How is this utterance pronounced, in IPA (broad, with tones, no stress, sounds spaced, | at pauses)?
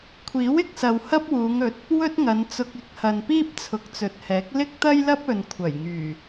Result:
kʷʰ iː˨˥ w ɪ˧ k̚ s ɐ˨ w h ɐ˥ p̚ w uː˨˧ ŋ ɵ˨˥ t̚ | w ɵ˥ t̚ ŋ ɐ˨˧ n t͡s ʊ˧ k̚ ɪ˨˥ k̚ h ɐ˨ n p iː˥ p̚ t͡sʰ ʊ˨˥ k̚ t͡s ɵ˨ t̚ h ɛː˨˥ k̚ l ɪ˥ k̚ t̪ ɐ˥ j l ɐ˥ p̚ ɵ˨ n kʷʰ ɐ˨˩ j ŋ yː˨˩